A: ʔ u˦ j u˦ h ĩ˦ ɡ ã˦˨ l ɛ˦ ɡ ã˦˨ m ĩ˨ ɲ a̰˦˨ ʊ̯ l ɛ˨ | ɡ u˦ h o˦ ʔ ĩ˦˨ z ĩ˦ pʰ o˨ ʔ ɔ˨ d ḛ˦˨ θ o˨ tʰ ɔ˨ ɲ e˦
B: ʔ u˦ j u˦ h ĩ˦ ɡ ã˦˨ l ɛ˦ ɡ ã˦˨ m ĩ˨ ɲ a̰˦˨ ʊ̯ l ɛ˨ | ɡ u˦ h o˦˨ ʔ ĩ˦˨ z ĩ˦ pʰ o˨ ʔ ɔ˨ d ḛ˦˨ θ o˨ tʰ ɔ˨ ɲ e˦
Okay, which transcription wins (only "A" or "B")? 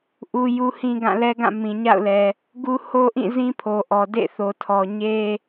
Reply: A